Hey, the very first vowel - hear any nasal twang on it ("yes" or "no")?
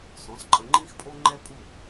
yes